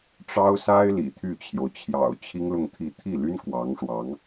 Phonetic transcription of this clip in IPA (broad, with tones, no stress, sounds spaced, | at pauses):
ʈ͡ʂ ɑ˥ ʊ̯ s a˥ ɪ̯ l ḭ˨˩ t̪ʰ y˥˩ t͡ɕʰ j o˩ ʊ̯ t͡ɕʰ j ɑ̰˨˩ ʊ̯ t͡ɕʰ i˥ ŋ l ʊ˥˧ ŋ t̪ʰ i˥˧ t̪ʰ i˥˩ l y˥ n k w ɑ˧˥ ŋ ʂ w ɑ˧˥ ŋ